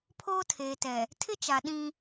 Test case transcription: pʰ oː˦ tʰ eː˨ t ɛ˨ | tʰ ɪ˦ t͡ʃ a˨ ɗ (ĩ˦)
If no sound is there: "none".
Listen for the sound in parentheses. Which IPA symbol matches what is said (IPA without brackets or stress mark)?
ĩ˦